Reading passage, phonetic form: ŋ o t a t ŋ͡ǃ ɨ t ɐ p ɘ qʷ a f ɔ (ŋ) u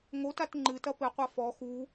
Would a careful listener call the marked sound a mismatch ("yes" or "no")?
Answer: yes